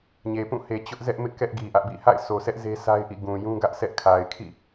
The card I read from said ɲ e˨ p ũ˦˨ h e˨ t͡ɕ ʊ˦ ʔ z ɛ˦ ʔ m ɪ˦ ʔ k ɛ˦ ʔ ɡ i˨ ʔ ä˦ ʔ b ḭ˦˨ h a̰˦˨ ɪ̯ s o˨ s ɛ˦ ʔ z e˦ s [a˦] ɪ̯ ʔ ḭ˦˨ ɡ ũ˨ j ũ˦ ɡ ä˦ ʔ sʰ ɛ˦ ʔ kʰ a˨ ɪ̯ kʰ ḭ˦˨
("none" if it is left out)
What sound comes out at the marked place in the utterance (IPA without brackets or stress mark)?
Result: a˦